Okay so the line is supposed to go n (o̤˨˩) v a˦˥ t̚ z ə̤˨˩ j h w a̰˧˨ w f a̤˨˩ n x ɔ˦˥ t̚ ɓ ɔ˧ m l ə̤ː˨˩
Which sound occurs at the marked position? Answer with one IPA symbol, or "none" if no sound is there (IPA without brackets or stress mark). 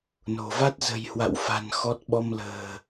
o̤˨˩